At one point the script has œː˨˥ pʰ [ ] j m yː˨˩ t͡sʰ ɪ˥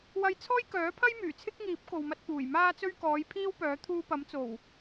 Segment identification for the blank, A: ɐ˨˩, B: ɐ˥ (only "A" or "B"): B